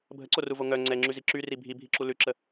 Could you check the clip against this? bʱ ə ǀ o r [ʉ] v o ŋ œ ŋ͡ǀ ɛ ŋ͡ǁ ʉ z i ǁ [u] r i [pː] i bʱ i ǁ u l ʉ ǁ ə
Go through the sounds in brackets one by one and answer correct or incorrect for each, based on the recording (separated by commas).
incorrect, incorrect, incorrect